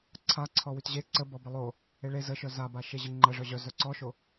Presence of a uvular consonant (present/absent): absent